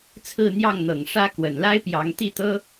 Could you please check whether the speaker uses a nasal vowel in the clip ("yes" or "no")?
no